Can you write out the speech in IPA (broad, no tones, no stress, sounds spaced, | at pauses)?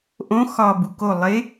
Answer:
ʔ õ x ɒ b u k o lˠ e